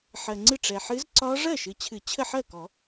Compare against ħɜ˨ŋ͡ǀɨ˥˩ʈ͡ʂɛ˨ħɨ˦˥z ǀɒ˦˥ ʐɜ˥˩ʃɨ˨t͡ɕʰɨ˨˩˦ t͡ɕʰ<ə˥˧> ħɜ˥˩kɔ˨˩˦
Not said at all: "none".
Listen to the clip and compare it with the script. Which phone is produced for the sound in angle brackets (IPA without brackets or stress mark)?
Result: ə˥˧